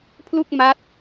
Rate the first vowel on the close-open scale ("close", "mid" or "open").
close